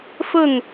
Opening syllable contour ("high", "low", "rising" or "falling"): falling